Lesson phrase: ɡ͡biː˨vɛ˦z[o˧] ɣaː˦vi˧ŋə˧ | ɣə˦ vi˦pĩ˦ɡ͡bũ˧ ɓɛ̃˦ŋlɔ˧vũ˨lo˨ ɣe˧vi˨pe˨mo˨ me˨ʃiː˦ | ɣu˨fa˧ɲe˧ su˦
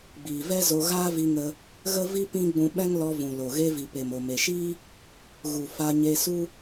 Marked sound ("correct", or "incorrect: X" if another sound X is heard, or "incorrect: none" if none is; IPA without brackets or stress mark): correct